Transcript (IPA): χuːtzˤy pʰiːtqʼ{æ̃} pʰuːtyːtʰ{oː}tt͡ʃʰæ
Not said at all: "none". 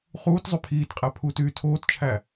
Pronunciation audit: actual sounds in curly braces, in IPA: æ, oː

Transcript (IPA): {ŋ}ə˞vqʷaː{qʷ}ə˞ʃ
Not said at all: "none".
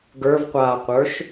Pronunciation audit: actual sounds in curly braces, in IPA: ɡ, qʷ

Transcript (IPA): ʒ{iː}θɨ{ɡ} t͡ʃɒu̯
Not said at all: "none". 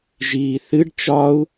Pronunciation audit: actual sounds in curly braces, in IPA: iː, ɖ

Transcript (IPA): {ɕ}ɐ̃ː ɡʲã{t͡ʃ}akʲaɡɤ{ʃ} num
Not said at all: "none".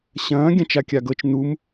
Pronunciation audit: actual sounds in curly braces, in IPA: ɕ, t͡ʃ, t͡ʃ

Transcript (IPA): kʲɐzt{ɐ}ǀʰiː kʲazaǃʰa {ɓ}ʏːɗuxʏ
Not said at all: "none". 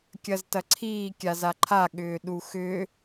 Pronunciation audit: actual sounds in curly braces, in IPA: ɐ, ɠ

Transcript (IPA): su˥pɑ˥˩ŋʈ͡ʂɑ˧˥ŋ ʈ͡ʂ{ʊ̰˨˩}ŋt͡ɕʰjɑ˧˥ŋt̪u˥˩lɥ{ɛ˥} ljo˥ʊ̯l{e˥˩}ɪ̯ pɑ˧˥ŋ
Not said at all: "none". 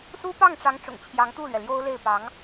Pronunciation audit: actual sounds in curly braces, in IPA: ʊ̰˨˩, ɛ˩, e˥˩

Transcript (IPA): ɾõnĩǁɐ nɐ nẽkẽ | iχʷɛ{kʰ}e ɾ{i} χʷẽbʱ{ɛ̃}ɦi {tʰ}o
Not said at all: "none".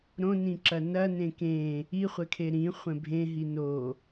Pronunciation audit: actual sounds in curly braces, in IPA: kʰ, ĩ, ẽ, n

